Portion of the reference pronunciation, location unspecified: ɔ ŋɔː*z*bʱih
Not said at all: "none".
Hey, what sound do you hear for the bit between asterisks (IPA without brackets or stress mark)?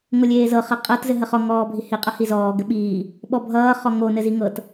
none